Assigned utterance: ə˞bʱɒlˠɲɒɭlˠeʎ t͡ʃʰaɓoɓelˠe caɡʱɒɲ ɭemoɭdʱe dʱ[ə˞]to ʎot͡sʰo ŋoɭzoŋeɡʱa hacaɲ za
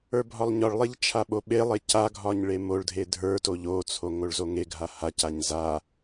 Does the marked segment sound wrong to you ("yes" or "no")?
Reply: no